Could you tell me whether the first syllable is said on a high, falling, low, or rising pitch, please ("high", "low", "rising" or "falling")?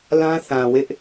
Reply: high